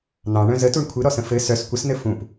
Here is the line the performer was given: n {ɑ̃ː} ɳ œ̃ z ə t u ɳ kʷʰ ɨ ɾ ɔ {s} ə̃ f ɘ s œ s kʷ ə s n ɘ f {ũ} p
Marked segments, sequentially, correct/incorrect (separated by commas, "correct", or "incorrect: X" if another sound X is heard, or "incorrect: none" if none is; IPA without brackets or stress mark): incorrect: ɑ̃, correct, correct